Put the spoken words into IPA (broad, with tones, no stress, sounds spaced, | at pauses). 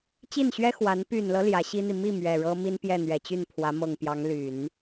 t͡ɕ i˥˩ n ɕ ɥ ɛ˥ x w a˧˥ n p y˨˩ n l ɤ˦ l j ä˧˥ ɕ i˥ n̪ i˨ m i˥˩ m ɥ ɛ˨˩ ɻ ɤ˥ m i˥ n p j ɛ˥˩ n̪ ɥ ɛ˨˩ t͡ɕ y˥˩ n pʰ w ä˧˥ m ɤ˨˩ ŋ p j ɑ˧˥ ŋ l y˨˩˦ n